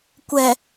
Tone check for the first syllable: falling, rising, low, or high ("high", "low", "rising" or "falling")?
low